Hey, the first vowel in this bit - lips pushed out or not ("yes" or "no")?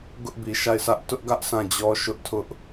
yes